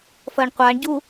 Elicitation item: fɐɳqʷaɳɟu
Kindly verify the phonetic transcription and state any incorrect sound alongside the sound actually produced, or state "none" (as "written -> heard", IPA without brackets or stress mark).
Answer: none